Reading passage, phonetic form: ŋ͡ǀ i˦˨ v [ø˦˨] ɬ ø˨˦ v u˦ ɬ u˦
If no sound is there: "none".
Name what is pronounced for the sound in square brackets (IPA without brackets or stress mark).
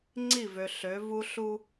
ø˨